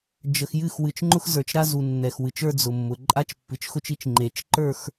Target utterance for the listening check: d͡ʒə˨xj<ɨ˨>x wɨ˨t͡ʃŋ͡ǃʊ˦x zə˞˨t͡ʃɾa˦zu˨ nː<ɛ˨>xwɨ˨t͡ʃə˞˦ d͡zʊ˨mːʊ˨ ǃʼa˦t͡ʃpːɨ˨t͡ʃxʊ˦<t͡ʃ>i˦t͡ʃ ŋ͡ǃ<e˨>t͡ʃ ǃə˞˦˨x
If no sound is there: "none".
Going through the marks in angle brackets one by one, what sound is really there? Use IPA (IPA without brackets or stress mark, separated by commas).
ɨ˦˨, ɛ˨, t͡ʃ, e˨